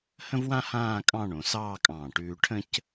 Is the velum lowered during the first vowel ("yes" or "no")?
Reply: yes